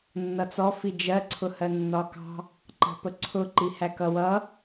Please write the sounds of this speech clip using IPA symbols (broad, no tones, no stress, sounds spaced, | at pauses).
nː ʌ t͡s ɔ f i d͡ʒ ɜ ǀʰ ʊ h ɜ nː ɒ k ɑ̤ | ǃ ɑ̤ p ə ǀʰ ʊ ǃ i h æ k ʌ w ʌ